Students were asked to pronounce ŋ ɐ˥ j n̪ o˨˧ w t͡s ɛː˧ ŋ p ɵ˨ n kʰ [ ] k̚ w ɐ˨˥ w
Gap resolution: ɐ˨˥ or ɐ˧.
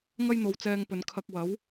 ɐ˧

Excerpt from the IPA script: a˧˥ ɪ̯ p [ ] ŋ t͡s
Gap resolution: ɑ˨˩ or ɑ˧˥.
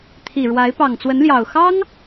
ɑ˨˩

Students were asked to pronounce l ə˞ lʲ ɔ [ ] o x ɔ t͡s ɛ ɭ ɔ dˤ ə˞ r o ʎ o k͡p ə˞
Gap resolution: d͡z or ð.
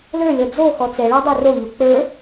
d͡z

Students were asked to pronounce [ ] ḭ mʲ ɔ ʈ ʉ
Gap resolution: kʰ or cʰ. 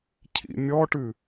cʰ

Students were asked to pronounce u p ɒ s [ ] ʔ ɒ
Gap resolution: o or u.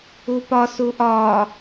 u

